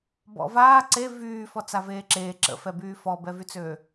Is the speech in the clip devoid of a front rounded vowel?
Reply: no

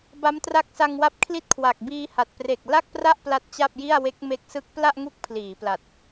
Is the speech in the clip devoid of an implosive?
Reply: yes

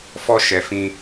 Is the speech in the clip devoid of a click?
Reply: yes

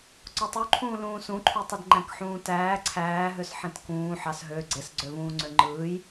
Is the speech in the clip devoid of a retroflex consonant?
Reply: yes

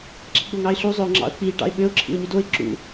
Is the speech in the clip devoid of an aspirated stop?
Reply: no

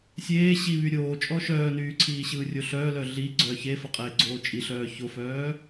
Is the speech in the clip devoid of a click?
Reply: no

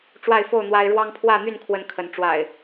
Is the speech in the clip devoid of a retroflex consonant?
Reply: no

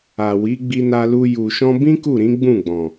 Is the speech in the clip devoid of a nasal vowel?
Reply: no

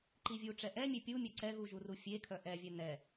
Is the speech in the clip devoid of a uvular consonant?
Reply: yes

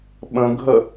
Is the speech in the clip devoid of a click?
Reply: yes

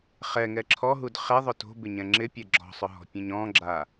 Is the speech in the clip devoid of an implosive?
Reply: yes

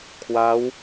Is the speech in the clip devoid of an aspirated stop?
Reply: no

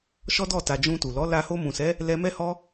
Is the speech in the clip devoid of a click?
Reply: yes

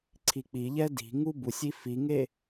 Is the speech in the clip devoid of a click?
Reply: no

